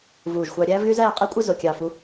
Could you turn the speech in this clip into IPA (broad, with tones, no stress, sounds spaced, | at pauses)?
v uː˧˩ ʒ xʷ ɑ˧ ɾʲ æː˥ v ɣ y˥ z æː˥˧ qʼ e˥ kʷʼ ɯ˥˧ z o˧˩ kʲ ɑ˧˩ f u˧